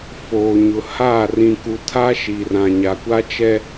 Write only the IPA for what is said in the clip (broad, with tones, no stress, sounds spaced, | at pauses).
f oː˨ ɲ ʊ˨ h a˦˨ r ĩ˨ k u˨ tʰ a˦ ʃ i˨ r ã˨ ɲ a˨ kʷ a˦ t͡ʃ ɛ˦